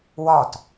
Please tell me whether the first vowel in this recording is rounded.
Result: yes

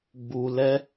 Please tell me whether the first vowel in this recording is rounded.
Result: yes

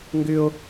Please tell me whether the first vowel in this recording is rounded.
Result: yes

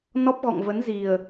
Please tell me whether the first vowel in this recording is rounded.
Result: yes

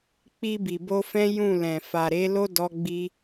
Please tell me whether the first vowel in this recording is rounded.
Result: no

